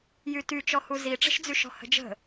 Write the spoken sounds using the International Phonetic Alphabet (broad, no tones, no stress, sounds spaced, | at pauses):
j y t y t͡ʃ ɔ h u z i ʈ͡ʂ ə̤ ʃ d͡z y ʃ ɔ̤ h ə̤ d͡ʒ ə̤